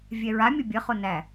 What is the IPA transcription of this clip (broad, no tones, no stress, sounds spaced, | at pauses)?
vʲ ɛ ɹ a mʲ ə bʲ ə χ o n æ